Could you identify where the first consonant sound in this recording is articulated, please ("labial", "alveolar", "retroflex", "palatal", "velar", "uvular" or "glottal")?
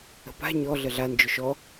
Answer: labial